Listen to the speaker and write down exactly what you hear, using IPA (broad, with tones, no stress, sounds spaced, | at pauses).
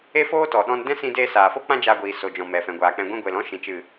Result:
e˦ f oː˦ t ɔ˨ ɗ ɔ̃˧ n d ɛ̃˦ s ĩ˧ d eː˧ s aː˨ f o˦ k͡p ã˦ d͡ʒ aː˧ ɡʷ iː˨ s o˨ d͡ʒ ɔ̃˨ m ɛ˨ f ɛ̃˨ ɡʷ aː˨ k͡p ɛ̃˨ ɡʷ ĩ˧ ɡʷ e˨ l ɔ̃˦ ʃ ĩ˨ t͡ʃ ɨ˨